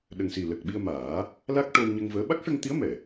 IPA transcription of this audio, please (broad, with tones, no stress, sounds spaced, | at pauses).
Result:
ɗ ə˨˩ ŋ s i˨˩ l ə˨˩ k̚ ɓ i˧ ə̯ m aː˨˩˦ | l a˦˥ k̚ ʈ o˧ w ɲ ə˧ ŋ v əː˧˥ ɓ a˦˥ k̚ ʂ ə˧ ŋ t̪ i˧˥ ə̯ m ɛ˨˩˨